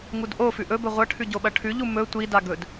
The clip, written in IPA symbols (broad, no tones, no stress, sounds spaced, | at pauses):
ŋ u d ʔ o f ʉ ʔ ɵ b ɵ ʁʷ ɐ ʈʰ ʉ ɟ o ɓ ɐ ʈʰ ʉ ʎ u m ɵ tʷ i d a ɡ ɵ d